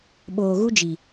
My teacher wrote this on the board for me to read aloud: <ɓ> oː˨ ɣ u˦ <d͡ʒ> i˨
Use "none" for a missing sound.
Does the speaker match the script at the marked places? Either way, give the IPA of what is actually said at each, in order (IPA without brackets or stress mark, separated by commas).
ɓ, d͡ʒ